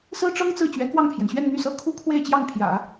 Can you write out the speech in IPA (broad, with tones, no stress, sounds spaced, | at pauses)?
s ɹ̩˥ ʈ͡ʂ ɤ˥ ŋ t͡s ɹ̩˥˩ t͡ɕ ɥ ɛ˧˥ k w ɑ˥˩ ŋ pʰ j ɛ˩ n ɕ ɥ ɛ˥˧ n n̪ y˥˩ s ɤ˥ kʰ u˥ kʰ w e˥˧ ɪ̯ t͡ɕ j ɑ˥˩ ŋ pʰ j ä̰˨˩˦